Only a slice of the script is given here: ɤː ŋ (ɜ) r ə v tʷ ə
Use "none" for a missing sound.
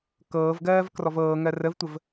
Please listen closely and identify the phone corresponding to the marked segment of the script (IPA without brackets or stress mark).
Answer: ɜ